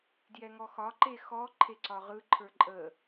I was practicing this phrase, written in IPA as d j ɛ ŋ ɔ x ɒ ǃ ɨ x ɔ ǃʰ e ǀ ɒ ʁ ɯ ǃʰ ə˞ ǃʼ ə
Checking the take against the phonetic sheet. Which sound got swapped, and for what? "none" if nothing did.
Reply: ɨ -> e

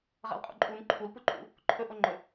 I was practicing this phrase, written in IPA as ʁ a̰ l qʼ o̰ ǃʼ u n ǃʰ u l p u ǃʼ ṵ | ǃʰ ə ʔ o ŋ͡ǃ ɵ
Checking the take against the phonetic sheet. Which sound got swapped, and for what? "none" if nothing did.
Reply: ə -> ɵ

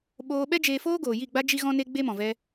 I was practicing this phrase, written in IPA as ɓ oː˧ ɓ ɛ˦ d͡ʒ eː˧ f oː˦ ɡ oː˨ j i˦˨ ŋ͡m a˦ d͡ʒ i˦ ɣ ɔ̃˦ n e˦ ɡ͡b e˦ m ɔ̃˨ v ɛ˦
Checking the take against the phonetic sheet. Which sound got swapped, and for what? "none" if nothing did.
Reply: ŋ͡m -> ɡ͡b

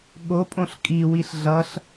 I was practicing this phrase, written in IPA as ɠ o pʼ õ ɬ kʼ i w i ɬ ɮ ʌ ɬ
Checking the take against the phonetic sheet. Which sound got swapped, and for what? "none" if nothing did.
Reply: none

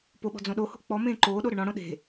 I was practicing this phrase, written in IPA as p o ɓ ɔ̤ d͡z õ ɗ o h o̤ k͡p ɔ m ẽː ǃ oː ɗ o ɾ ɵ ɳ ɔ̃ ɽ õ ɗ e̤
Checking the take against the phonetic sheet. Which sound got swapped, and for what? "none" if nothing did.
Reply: none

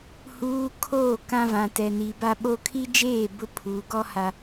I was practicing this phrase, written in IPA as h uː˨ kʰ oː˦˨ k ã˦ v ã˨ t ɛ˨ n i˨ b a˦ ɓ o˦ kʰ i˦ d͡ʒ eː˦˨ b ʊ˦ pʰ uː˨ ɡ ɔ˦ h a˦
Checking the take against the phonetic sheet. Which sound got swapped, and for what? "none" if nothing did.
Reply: none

